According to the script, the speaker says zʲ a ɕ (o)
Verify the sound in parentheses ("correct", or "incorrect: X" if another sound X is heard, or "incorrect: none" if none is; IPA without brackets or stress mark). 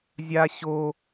correct